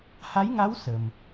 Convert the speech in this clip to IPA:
h a˧˥ j ŋ a˧˥ w s ə˨˩ m

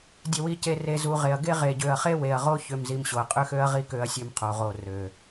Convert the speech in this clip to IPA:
dʲ e˨ w i˨ c e˨ r e˨ z u˨ ʁ e˨ ɐ̯ ɡ e˦ ʁ e˨ ɟ ø˨ ɐ̯ χ e˦ w e˨ ɐ̯ ʁ o˦ ç ø˦ m z i˦ m ɕ o˨ ɐ̯ qʼ ø˦ x ø˦ ɐ̯ ʁ i˦ k ø˦ ɐ̯ sʲ ø˦ m qʰ o˨ ʁ o˦˨ r ø˨

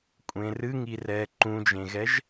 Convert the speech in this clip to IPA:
kʷʼ ẽ r ɨ ŋ i r ɛː ǃ ũ d͡ʒ ẽ ɣ ɛ ʒ

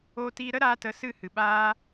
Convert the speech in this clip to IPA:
oː˦ t iː˦ ɾ ə˦ ɾ aː˧ t ə˨˦ s ɨ˦˨ h ɨ˨ ɓ aː˦

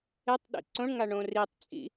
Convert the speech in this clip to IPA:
e tˤ ɗ ḭ ǀ õ ɳ ŋ a ɳ õ r i tˤ t͡sʼ ḭ

